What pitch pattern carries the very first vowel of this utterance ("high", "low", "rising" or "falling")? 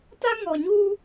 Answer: high